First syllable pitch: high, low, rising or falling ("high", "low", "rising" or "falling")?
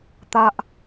high